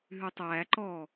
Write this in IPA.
ɦʉtˤæːǃɔː

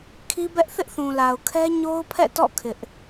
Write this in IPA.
kʰi˦bɛ˦ʔ θɪ˦ʔθũ˨la˨ʊ̯kʰɛ˦ ɲo˦ʊ̯pʰɛ̰˦˨tɔ̰˦˨ kʰɪ˦ʔ

